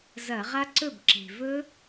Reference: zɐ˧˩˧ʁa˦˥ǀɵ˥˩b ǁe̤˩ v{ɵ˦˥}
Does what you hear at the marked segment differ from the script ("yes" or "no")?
no